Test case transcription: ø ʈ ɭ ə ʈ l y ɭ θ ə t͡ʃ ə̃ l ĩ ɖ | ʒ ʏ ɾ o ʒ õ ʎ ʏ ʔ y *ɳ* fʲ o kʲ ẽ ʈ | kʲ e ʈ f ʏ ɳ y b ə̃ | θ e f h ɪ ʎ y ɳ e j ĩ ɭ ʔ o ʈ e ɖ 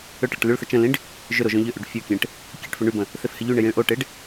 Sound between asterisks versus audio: incorrect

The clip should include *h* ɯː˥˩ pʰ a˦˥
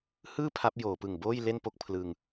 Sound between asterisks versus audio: correct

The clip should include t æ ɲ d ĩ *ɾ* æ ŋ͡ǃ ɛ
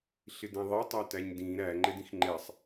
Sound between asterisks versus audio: correct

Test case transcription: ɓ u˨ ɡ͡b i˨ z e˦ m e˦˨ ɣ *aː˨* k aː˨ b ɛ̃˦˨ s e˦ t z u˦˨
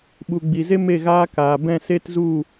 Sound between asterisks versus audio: incorrect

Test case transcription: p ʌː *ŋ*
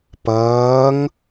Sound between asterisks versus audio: correct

